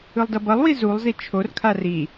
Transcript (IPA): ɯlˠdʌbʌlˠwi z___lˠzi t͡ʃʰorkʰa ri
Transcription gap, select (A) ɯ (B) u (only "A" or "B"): B